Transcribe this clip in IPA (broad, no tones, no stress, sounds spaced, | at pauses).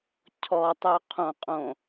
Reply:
cʰ ɔ tˤ o qʰ õ qʼ õ